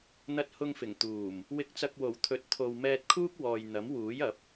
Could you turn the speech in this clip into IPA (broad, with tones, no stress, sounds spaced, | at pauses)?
n̪ ɐ˧ t̚ h ʊ˧ ŋ f ɪ˨˩ ŋ t̪ uː˨˩ m | w ɪ˧ k̚ t͡s ɐ˧ k̚ w o˨˩ w t̪ʰ ɵ˨˥ t̚ t̪ʰ o˨ w m ɛː˧ t̚ kʰ uː˥ k̚ w ɔː˨ j n̪ ɐ˨˥ m w uː˨˥ j ɐ˨˥ p̚